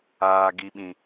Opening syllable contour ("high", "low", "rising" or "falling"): low